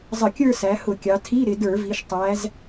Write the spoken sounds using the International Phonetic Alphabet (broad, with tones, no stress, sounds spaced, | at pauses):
zˤ ə˧˩˧ kʲ ə˞˥˧ s æ˩˧ h ʊ˧˩˧ kʲ ɑ˩˧ tʰ i˧˥˧ ɾ ɪ˩˧ d ə˞˧˩˧ v i˩˧ ʃ tˤ æ˩˧ z